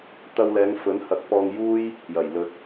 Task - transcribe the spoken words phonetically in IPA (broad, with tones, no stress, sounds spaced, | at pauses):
t̪ ɐ˧ w l ɛː˨˧ ŋ f ɵ˨˥ n h ɐ˨˥ k̚ p ɔː˧ ŋ j uː˥ j | j ɐ˨˩ j l ɵ˨ t̚